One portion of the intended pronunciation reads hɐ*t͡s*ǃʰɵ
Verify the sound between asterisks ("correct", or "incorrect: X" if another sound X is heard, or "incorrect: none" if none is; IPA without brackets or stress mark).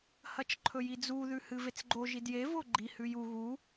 incorrect: t͡ʃ